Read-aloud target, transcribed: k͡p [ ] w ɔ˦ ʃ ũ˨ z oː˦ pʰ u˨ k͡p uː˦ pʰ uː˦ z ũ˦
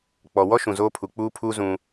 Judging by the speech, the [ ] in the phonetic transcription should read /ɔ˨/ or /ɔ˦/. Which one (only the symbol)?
ɔ˨